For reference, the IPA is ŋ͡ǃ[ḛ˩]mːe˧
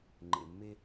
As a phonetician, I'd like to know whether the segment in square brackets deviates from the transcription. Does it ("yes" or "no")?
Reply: no